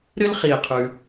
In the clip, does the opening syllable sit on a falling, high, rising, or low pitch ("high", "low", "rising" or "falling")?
high